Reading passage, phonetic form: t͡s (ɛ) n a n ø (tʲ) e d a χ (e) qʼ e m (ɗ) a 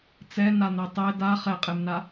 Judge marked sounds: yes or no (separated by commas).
yes, no, no, no